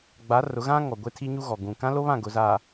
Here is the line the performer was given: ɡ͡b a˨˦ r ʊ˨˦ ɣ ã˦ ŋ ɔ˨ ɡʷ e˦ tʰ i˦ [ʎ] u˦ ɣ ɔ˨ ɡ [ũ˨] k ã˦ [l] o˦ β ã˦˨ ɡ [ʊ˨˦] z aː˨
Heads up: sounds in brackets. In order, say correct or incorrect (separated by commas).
incorrect, correct, correct, correct